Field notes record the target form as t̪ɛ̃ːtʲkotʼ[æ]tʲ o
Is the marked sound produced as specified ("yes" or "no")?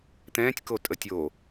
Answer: no